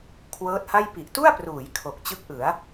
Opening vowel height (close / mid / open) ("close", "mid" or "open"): mid